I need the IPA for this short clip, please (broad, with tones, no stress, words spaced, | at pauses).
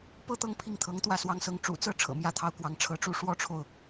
pɤ˥˧t̪ɤ˥˧ŋ pʰi˥˩ŋt̪ʰɤ˧˥ŋt̪wä˥˩ swɑ˧˥ŋsɤ˧˥ŋ ʈ͡ʂṵ˨˩t͡sɤ˥˩ ʈ͡ʂʰɤ̰˨˩mjä˥t̪ʰɑ˥ʊ̯kwɑ˧˥ŋ ʈ͡ʂʰɤ˧˥ʈ͡ʂu˧˥ ʂwɔ˥ʈ͡ʂʰo˨ʊ̯